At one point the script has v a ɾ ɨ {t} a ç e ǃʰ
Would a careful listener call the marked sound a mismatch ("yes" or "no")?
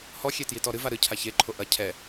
yes